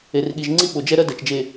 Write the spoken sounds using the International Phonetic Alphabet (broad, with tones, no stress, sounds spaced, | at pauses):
e˨ r ɠ i˨ ʒ ŋ͡ǀ i˦ ɓ o˨ d͡ʒ ɛ˦ ɾ ɜ˦ d ɜ˨ t͡ʃ d͡ʒ e˨